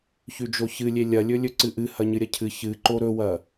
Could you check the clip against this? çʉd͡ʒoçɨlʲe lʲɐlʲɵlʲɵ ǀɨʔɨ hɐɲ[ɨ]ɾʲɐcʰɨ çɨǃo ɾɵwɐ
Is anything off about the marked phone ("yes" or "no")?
no